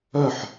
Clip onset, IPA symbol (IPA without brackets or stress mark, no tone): œ